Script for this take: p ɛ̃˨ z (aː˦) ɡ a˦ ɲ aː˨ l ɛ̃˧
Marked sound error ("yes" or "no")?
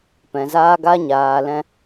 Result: no